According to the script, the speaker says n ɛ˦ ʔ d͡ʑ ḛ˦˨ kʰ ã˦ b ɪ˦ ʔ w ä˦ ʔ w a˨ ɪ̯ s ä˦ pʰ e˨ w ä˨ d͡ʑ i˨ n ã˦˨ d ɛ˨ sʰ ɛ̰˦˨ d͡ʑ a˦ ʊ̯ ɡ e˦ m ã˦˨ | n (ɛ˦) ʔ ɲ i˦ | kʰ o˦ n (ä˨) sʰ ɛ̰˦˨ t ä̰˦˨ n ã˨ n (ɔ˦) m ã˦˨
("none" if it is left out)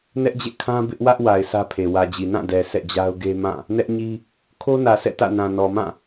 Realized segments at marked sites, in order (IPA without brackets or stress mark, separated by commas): ɛ˦, ä˨, ɔ˨